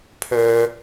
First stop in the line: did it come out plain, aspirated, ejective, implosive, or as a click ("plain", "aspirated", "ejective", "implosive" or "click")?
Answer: aspirated